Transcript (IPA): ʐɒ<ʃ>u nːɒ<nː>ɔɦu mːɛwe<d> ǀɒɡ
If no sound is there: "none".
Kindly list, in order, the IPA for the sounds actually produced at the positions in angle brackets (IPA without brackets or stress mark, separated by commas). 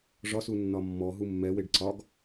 s, mː, ɖ